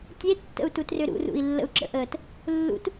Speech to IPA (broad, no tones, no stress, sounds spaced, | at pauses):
tʲ e tː ə̰ u̯ t u t r ʏ ɾ ṵ r ṵ i̯ lː ə̰ u̯ ǁ ə̰ ʔ əː t | lː ṵ t